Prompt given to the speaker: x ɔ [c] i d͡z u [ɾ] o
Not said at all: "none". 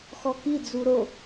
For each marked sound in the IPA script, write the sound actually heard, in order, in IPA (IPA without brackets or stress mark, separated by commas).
k, ɾ